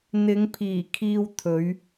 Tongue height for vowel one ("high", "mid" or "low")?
high